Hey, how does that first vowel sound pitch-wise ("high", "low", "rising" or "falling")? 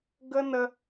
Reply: high